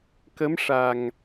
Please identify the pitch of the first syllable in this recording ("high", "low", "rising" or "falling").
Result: rising